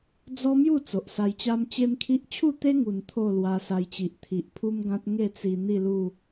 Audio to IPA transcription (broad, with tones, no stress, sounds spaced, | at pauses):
d͡z ɔ˦ m j u˥˧ t͡s o˨ ʔ s a˧ j t͡ɕ a˦ m t͡ɕ e˦ m kʰ i˦ ʔ t͡ɕʰ u˥˧ t̪ e˦ ŋ u˨˩ n t̪ʰ o˥˧ l w a˧ s a˧ j t͡ɕ i˨ ʔ t̪ʰ i˨ ʔ pʰ u˦ m ɡ ã˦ t̚ ŋ e˥˧ t͡s i˨˩ n̪ i˥˧ l u˥˧